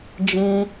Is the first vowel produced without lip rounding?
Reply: yes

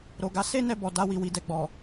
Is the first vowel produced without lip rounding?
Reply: no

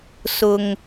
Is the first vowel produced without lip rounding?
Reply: no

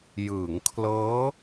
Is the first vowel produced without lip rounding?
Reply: yes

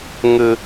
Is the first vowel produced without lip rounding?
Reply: yes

